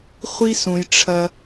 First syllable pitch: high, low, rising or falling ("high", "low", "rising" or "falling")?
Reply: high